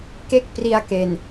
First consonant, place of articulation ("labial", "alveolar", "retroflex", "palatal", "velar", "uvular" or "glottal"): velar